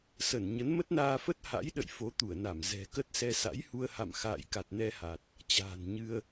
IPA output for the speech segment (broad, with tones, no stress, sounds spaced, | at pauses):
s ə˧˩ n ɲ ə˨˦ n m ə˦˥ t̚ n aː˧ f ə˦˥ t̚ h a̰˧˥ j ɗ ə̰˧˨ j f o˨˦ t̪ u˧˩ ə̯ n a˧˩ m z ɛ̤˨˩ k ə˦˥ t̚ s ɛ˧ s a̰˧˥ j h u˧ ə̯ h a̰˧˨ m x a̰ː˧˨ j k a˨˩ t̚ n ɛ˧ h a˨˩ t̚ | t͡ɕ a̤ː˨˩ n ɲ ɨ˧ ə̯